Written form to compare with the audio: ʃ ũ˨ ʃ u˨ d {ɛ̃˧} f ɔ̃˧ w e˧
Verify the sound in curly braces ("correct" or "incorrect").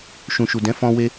incorrect